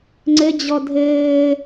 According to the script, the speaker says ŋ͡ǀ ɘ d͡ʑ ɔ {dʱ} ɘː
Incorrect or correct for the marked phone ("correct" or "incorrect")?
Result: correct